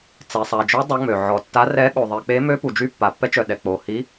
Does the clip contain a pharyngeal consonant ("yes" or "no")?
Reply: yes